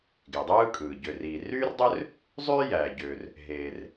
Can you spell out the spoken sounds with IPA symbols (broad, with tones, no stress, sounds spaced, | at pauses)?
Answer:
ɡ e˩ dˤ ɯː˥ kʼ ɯː˩ ɟ ø˩ r iː˩ r yː˥ r dˤ ø˥ r | zˤ yː˥ j æː˩ ɟ øː˩ r | ɦ eː˩ r